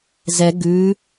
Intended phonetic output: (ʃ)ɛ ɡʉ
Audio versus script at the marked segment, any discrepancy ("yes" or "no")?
yes